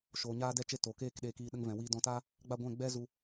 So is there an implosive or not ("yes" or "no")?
yes